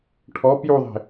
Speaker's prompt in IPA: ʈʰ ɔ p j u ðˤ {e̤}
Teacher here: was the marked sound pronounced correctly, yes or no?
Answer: yes